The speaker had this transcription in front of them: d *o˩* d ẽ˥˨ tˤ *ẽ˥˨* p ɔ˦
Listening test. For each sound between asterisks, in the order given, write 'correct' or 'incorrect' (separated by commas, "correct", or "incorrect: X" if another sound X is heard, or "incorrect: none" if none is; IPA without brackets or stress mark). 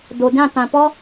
correct, incorrect: ẽ˩